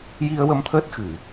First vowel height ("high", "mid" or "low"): high